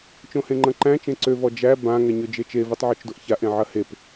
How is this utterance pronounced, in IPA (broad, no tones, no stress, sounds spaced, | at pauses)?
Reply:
t͡ʃ õ h ẽ ŋ͡ǃ ɐ̃ ǃ æ̃ t͡ʃ ẽ ǀ ø v ɔ d͡ʒ æ b ã ŋ ɛ ɲ ø d͡ʒ e t͡ʃ e v e tˤ ʕ o t͡ʃ d o ʔ ç a ʔ ẽ ʕ ɐ h e p